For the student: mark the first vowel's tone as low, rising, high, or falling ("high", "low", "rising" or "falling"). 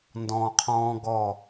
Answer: low